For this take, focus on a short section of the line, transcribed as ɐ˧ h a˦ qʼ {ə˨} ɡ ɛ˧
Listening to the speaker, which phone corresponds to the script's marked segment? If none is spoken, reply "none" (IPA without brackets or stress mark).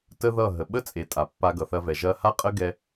ə˦